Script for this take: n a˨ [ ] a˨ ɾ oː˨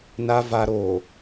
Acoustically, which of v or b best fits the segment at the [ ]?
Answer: v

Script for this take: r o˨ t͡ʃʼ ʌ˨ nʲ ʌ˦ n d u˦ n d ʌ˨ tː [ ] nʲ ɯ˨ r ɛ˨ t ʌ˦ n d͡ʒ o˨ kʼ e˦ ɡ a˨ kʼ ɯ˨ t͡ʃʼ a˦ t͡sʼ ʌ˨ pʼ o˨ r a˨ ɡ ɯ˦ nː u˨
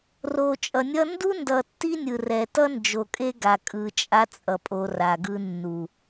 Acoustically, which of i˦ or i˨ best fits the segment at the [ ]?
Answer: i˦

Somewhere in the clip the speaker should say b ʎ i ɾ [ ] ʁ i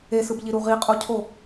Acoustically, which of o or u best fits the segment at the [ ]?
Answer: u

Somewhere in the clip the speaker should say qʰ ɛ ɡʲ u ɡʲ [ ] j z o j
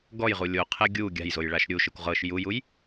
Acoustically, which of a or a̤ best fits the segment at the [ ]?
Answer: a̤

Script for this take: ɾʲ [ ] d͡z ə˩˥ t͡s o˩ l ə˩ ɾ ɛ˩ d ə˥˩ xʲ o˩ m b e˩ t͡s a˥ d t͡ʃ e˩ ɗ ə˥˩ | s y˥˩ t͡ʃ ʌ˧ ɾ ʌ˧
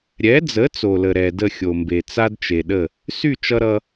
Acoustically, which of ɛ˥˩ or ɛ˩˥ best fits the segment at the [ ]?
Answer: ɛ˩˥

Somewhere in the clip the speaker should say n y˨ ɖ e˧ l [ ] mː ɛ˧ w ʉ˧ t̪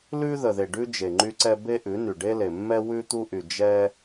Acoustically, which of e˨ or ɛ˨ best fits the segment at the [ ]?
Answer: e˨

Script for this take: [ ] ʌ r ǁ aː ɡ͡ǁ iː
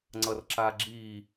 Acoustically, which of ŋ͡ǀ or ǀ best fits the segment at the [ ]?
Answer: ŋ͡ǀ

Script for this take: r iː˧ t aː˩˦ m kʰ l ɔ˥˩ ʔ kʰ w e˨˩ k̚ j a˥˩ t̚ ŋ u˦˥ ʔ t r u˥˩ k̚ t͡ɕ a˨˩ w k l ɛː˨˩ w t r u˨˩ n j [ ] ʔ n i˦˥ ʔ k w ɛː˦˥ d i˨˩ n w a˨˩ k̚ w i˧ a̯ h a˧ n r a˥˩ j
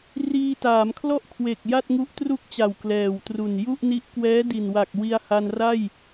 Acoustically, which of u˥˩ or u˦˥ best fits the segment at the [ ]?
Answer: u˥˩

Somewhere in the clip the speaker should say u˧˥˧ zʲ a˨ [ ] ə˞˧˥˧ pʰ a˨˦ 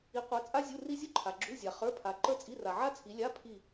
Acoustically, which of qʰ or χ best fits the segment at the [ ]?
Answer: χ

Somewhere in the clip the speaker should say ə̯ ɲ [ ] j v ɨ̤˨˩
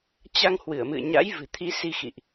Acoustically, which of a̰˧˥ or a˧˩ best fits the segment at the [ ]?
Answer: a̰˧˥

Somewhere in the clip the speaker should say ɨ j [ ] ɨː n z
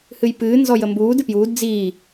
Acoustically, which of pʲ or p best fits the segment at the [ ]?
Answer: p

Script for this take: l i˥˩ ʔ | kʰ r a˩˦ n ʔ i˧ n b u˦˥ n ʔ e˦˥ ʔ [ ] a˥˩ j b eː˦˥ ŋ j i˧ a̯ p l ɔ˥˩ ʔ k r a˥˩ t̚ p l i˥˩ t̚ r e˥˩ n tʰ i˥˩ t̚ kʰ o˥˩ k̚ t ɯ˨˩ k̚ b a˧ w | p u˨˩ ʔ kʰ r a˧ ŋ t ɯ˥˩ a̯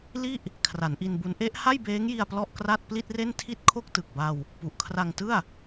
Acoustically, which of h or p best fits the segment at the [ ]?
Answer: h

